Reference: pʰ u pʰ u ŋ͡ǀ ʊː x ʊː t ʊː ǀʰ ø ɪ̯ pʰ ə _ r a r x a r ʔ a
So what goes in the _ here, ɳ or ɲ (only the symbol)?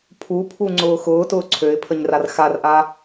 ɲ